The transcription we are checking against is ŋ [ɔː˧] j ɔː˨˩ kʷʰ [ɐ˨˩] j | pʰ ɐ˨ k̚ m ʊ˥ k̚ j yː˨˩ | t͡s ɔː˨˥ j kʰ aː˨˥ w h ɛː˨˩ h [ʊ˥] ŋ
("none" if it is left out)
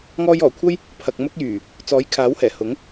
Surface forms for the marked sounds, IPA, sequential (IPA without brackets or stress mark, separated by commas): ɔː˧, ɐ˥, ʊ˨˥